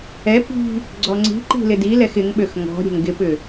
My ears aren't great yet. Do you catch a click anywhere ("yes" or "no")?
yes